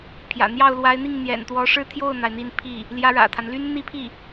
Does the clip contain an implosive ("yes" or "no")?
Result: no